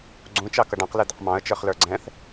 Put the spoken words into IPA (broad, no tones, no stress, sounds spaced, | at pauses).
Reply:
ɡ͡ǀ ũ t͡ʃ ɑ k ʌ ɖ ɑ̃ q l ɛ d̪ ʊ q m ɑ̃ ə̯ t͡ʃ ə˞ χ l ə˞ ɡ͡ǀ ɛ̃ θ